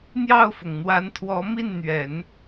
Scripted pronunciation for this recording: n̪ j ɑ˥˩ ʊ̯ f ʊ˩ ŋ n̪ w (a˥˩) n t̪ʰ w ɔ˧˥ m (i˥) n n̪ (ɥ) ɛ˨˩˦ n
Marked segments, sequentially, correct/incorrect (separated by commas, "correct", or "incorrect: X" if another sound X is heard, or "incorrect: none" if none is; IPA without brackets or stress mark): incorrect: a˧˥, incorrect: i˥˩, correct